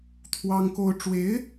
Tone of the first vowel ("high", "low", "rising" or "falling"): high